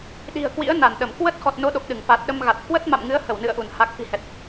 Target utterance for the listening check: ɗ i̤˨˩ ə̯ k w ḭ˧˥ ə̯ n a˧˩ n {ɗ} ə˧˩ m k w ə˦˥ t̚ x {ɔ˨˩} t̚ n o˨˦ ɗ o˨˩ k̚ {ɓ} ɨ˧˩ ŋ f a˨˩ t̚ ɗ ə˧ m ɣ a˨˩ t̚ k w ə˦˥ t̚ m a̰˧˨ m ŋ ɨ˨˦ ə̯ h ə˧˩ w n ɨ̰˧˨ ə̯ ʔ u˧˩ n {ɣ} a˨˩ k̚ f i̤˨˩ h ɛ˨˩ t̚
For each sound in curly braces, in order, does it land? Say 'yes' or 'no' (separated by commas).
yes, yes, no, no